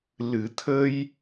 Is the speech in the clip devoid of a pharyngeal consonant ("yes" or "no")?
yes